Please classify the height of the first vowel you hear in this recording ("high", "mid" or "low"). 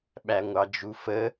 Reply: low